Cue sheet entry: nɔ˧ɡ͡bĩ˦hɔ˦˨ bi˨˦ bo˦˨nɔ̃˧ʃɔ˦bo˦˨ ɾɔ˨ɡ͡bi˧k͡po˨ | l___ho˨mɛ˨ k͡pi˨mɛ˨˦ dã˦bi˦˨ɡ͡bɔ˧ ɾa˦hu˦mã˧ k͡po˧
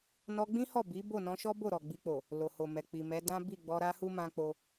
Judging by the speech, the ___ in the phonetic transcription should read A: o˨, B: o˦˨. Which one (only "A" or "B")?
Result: A